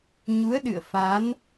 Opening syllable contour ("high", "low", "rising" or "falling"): rising